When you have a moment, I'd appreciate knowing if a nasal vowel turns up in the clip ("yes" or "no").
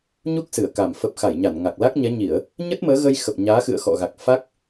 no